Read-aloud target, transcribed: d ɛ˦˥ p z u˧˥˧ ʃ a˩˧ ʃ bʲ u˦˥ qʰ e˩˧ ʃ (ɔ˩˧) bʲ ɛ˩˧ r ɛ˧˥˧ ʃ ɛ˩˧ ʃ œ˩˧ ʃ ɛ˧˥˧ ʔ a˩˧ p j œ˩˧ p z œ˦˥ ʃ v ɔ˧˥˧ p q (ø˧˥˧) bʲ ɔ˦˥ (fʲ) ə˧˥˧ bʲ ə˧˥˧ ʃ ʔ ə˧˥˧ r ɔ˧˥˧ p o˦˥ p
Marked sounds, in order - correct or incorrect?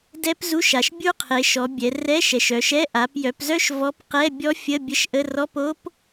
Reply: correct, incorrect: ɛ˧˥˧, correct

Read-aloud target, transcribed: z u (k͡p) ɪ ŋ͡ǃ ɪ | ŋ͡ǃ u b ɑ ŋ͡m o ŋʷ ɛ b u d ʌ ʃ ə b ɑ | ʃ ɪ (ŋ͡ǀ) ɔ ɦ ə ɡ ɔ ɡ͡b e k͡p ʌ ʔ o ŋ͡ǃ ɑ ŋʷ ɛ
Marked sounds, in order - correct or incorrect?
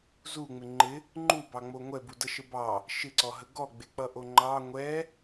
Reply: incorrect: ŋ͡m, incorrect: ǀ

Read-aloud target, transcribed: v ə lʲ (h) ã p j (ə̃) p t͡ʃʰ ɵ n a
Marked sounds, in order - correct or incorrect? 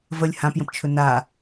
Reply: correct, correct

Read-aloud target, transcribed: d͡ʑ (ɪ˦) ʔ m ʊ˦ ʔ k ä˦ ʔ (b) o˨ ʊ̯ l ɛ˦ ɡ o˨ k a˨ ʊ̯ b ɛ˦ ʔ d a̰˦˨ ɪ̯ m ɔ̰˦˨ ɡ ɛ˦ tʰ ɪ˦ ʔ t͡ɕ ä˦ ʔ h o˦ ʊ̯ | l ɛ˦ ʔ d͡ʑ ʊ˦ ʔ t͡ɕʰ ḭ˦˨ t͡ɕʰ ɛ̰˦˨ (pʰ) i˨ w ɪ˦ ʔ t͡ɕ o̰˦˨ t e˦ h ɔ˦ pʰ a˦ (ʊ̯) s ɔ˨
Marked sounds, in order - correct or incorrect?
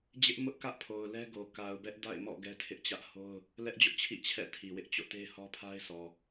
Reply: correct, incorrect: pʰ, incorrect: tʰ, incorrect: ɪ̯

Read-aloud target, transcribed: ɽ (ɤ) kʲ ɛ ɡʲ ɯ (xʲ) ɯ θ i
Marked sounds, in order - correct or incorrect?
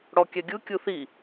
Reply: incorrect: ɔ, incorrect: kʲ

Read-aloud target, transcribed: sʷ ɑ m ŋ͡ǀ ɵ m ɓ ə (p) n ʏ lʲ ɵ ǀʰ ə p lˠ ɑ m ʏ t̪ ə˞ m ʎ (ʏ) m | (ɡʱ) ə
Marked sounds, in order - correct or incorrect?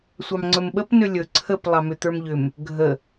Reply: correct, correct, correct

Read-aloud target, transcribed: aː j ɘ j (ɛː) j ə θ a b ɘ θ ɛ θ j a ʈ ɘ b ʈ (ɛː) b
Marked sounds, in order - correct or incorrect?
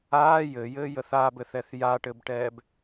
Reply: incorrect: ɘː, correct

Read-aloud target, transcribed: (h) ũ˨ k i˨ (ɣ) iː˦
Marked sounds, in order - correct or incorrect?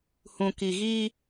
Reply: correct, correct

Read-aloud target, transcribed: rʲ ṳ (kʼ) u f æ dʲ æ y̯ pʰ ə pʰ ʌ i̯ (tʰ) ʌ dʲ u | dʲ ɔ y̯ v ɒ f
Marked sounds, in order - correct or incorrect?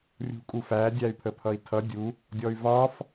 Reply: correct, correct

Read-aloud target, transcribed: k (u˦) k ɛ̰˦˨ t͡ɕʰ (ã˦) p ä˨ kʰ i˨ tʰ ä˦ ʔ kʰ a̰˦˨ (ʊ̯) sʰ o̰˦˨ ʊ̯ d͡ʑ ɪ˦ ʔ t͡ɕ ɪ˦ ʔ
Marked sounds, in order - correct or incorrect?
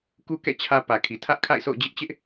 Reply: correct, incorrect: ä˦, incorrect: ɪ̯

